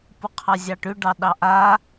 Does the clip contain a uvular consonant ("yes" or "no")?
yes